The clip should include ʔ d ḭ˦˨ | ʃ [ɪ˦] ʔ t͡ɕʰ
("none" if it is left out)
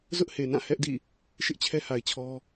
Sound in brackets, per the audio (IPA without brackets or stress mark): ɪ˦